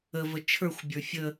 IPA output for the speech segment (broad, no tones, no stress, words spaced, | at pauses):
əvə t͡ʃʰə˞xʷbʲə˞ fʲə